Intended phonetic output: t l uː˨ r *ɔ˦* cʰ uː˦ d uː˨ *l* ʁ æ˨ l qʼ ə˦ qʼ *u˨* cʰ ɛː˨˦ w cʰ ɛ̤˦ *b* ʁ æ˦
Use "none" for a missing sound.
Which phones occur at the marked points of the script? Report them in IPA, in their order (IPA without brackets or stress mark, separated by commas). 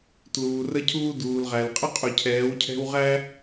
ə˦, l, u˨, w